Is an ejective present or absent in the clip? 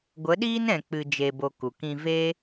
absent